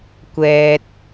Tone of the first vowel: high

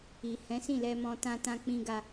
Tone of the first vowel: low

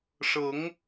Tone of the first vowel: rising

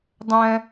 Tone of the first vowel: low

